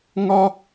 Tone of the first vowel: high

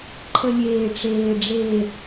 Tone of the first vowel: low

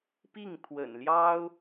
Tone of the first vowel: falling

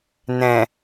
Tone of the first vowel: low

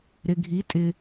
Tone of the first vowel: low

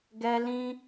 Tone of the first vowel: high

